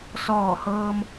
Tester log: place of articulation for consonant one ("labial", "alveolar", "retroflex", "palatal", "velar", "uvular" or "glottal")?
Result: alveolar